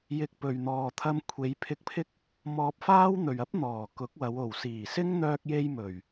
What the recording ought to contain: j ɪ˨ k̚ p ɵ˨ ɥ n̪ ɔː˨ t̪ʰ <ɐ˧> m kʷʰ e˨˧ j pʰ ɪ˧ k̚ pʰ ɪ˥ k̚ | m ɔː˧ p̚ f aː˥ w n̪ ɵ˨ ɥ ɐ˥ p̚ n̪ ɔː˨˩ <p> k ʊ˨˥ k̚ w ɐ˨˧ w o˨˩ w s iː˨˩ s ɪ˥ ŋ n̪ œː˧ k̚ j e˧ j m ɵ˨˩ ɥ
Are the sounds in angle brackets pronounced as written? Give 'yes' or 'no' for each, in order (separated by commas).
yes, no